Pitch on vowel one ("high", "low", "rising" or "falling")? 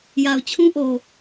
low